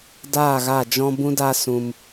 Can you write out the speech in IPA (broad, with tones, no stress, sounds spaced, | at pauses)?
d aː˦˨ ɣ a˦˨ d͡ʒ ɔ̃˦ b ũ˦ d a˦ s ũ˧ m